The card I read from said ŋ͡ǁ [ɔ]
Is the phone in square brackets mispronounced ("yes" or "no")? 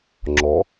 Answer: no